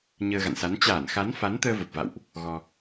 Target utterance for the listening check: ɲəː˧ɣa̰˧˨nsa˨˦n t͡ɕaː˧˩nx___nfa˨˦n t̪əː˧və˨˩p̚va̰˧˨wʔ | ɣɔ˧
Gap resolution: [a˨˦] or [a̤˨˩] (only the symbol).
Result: a˨˦